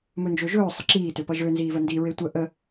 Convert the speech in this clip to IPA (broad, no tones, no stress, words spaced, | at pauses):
mɵnd͡ʒøʒɵː sˤəǁiː tøpʌʒø nziːvəndi ɹetʷə ʔə